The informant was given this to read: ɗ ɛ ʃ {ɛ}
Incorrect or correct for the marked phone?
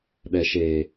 incorrect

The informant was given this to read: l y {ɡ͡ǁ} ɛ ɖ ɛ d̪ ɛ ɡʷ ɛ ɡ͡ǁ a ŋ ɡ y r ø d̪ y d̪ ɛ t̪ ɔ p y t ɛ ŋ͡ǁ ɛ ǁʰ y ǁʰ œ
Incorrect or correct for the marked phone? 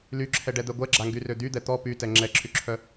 incorrect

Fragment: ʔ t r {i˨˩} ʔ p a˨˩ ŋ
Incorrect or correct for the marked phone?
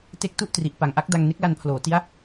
correct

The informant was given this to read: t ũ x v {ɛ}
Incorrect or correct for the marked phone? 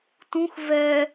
correct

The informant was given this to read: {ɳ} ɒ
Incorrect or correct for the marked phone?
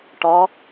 incorrect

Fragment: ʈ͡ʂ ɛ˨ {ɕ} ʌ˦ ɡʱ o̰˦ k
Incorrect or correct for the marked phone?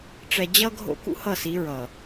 incorrect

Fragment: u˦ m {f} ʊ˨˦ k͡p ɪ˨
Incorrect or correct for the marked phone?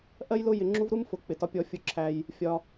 correct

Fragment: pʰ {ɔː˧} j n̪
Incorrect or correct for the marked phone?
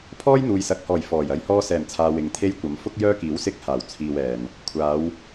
incorrect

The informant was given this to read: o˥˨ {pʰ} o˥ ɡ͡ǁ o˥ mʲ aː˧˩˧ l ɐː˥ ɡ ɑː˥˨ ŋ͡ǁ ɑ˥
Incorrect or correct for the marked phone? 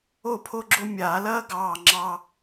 correct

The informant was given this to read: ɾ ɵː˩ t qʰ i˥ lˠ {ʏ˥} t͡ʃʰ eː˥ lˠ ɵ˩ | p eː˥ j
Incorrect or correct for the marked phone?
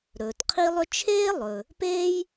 correct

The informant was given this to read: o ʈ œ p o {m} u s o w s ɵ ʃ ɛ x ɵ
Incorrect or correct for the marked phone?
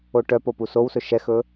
incorrect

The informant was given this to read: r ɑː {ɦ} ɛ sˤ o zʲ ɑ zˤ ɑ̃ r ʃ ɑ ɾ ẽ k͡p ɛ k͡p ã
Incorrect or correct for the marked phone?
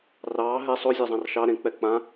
correct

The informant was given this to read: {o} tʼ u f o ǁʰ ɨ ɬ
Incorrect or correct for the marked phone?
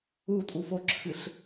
incorrect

